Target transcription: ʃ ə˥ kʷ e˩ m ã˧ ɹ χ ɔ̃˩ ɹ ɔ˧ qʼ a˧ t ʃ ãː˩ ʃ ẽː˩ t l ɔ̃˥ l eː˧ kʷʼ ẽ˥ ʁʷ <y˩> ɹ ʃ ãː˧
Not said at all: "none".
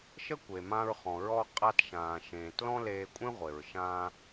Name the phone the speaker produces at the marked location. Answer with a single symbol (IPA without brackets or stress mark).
e˩